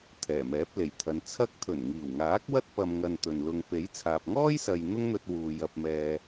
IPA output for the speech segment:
t̪ʰ ɛː˨˩ m ɛː˨˥ p̚ l e˨˩ j t̪ʰ ɐ˨˧ n t͡sʰ ɐ˥ k̚ t̪ʰ ɵ˨˩ n ŋ iː˨˩ w ŋ aː˨˥ k̚ w ɐ˥ t̚ p ɐ˨ m ŋ ɐ˧ n t̪ ɵ˨ n l ʊ˧ ŋ p e˨˥ j t͡sʰ aː˨ p̚ ŋ ɔː˥ j s ɐ˨ j n̪ ʊ˥ ŋ n̪ ɵ˧ t̚ w uː˨ j ɐ˧ p̚ m ɛː˧

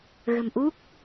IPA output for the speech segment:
ɣ ə̤˨˩ m ʔ u˦˥ k̚

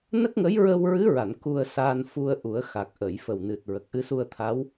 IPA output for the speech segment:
n ə˦˥ k̚ ŋ ə˧˥ j ɹ ə˧ w ɹ ɨ˧˥ ɹ a˨˩˨ n k u˧ ə̯ s aː˧ n f u˧ ə̯ ʔ u˨˩˦ ə̯ x a˨˩ k̚ ʔ ə˨˩˨ j f ə˨˩ w n ɨ˨˩ t̚ ɹ ə˨˩ k̚ ʔ ɨ˧ s u˧ ə̯ t̪ʰ a˧˥ w

